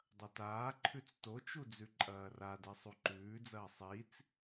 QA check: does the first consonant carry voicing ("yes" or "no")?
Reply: yes